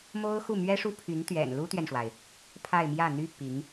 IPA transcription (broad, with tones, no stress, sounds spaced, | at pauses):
m o˥ ʊ̯ x u˥˩ m ɥ ɛ˥ ʂ u˥ pʰ y˧˥ n t̪ ɥ ɛ̰˨˩ n l u˥ t̪ ɥ ɛ˨ n ʂ w a˩ ɪ̯ | pʰ a˥˧ ɪ̯ m j ä˥˩ n̪ y˥ p i˧˥ ŋ